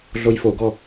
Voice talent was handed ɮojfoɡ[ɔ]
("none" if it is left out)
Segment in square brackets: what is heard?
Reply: ɔ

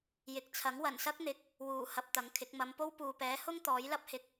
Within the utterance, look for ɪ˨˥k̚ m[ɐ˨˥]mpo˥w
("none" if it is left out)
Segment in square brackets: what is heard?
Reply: ɐ˨˧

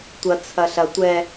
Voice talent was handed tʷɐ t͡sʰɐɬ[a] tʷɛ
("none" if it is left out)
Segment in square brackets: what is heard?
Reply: ɐ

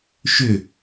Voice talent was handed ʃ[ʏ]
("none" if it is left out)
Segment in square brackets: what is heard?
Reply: ʏ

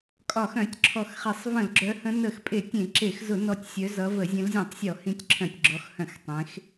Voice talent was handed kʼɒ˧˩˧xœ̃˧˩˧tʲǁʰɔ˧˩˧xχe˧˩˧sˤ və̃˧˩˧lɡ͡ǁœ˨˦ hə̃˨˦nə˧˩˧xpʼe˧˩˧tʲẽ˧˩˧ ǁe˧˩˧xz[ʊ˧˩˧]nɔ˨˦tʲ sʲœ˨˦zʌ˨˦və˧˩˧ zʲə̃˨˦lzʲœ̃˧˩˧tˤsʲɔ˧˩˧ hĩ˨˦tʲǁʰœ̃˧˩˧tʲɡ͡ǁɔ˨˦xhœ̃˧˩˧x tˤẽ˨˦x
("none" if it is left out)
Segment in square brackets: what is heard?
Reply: ʊ˧˩˧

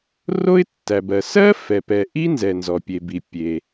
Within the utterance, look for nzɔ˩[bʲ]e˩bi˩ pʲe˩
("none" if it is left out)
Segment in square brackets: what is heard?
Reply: pʲ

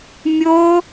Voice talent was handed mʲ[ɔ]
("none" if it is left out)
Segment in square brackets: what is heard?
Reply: o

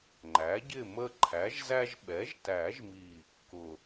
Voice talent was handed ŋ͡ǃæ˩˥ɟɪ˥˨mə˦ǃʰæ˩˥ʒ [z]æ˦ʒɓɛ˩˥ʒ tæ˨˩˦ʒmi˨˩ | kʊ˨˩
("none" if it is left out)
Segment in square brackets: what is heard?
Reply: z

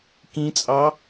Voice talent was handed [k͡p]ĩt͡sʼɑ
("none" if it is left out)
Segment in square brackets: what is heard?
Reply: k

